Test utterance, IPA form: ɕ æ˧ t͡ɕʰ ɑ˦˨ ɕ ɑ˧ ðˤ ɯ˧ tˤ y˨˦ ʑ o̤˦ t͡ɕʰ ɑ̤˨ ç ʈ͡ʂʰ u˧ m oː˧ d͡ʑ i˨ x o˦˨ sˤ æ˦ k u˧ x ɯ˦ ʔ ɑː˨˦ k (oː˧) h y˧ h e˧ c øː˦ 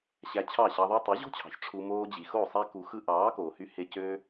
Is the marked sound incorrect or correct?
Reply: incorrect